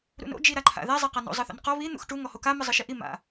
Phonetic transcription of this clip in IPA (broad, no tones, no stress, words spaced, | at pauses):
ɾṵno̰ d͡ʒiɾaǃʰa̰ðɛ zˤɛqano̰ zˤɤθo̰nqɔ βi n̪ṵxʈu ŋɔhoka mɯzˤɯʃiʔi ma̰